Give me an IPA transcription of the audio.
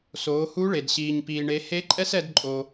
soː˩˧hu˧˥ɭe˩d ɕiː˩ɲpiː˩ɳe˩˧ he˧˥ǃʼɛ˥s ɛ˧dǃʼo˩

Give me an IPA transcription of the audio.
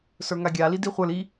sə˞ŋaɡʲa lidiχʷə˞l i

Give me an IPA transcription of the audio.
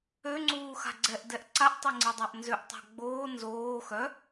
øŋ͡ǀuːxa̤ ɡ͡ǀɛʔdɛʔ ǀaʔtˤeŋ͡ǀidˤaʔ nzøʔtˤa̤ ɡ͡boː nzoː xœ

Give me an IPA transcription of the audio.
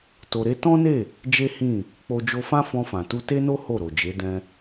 to˧ɾe˦ tɔ̃˦ne˦˨ | d͡ʒe˦hĩ˦˨ | k͡po˧d͡ʒo˧fã˦ fɔ̃˧fã˨tu˧ te˦no˦ ho˦˨ɾo˨d͡ʒe˨˦dɛ̃˧

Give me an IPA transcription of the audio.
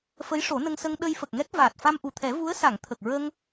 fə˧˥jʂo˨˩˦nə˧ŋsə˧ŋ ɗə˧j fə˨˩k̚ŋɛ˦˥k̚ vaː˨˩t̚fa˧mʔu˨˩t̪ʰɛ˨˩˦ vu˧˥ə̯sa˨˩˨ŋ t̪ʰə˨˩k̚ɹə˧ŋ

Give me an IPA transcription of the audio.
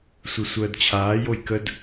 sʷɨsʷəːdt͡ɕʰaː jojkəd

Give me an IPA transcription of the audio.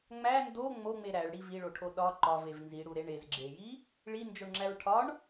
ŋ͡mæ ndo ŋ͡moŋ͡me ɾæɭɽi viɭoʈʰo ɗɒ ǃɒvev nziɽuɾe ɳezɡ͡ǁeji | ɭind͡ʒoɳŋ͡ǁæɹ ʈʰɒɳ

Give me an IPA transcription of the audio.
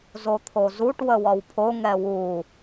zot̪ʰozuʈ wəwɒwpʰo ŋɛwu

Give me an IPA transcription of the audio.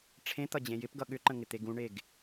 ʈ͡ʂʰẽt̪ʌ d͡ʑẽjɪpɡʌ ɠʏǃə̃ ŋɪt̪eɡũɳeɡ

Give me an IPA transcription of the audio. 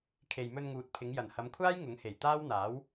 kʰe˨jmɵ˧nŋuː˨t̚ pʰɪ˨˧ŋ jɐ˨˩nhɐ˨˧mkʷʰaː˥j ŋʊ˨˥ŋhe˨˩j t̪aː˥wn̪aː˨˥w

